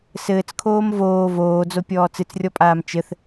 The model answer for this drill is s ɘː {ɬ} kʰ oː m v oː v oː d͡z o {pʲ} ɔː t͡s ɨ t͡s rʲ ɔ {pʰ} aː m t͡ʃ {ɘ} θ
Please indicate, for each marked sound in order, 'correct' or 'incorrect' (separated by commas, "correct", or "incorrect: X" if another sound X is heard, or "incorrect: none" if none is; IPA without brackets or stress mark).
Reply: incorrect: t͡s, correct, incorrect: pʼ, correct